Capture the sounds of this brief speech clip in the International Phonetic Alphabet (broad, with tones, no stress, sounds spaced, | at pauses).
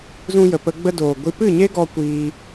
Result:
z ũ˧ j ə˨ p ə˧ ɡ͡b ə˧ d oː˨ ɡʷ i˧ p ɨ˦˨ ɲ e˦ ɡ ɔ˧ kʷ iː˧